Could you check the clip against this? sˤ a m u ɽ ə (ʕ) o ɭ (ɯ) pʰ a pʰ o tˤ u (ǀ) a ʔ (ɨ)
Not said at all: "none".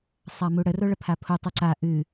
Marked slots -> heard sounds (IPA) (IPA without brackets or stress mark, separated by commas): r, ə, ǀ, ɨ